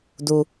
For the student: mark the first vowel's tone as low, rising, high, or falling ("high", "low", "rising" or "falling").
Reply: low